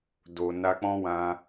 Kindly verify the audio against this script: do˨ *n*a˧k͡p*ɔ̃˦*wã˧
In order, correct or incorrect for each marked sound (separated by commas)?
correct, correct